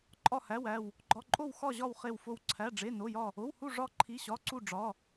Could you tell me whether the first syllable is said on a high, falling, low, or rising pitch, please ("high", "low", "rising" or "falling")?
falling